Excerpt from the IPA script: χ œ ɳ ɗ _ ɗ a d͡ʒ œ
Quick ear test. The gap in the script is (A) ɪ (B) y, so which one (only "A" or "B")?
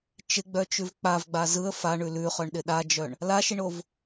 A